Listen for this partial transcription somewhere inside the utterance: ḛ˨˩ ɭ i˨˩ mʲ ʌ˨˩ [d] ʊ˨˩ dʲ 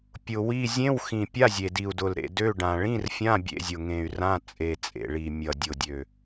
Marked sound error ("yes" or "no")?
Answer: yes